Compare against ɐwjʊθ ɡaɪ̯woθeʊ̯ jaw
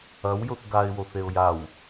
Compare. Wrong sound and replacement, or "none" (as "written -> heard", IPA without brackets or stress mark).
none